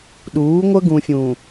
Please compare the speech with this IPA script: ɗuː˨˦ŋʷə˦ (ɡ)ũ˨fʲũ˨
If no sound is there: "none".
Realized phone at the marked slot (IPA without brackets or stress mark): ɡ